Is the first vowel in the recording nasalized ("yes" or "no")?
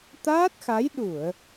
no